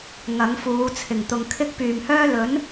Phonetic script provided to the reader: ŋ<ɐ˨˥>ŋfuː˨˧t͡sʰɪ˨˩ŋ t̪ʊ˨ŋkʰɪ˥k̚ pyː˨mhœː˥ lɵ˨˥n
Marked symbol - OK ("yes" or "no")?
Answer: yes